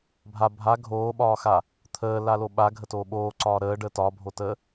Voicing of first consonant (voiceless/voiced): voiced